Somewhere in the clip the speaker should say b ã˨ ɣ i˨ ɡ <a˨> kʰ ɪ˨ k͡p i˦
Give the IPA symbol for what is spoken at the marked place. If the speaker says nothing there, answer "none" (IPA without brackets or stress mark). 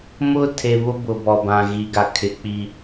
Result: a˨